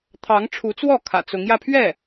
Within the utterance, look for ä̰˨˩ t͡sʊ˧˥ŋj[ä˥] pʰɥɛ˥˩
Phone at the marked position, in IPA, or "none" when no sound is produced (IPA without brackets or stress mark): ä˥˧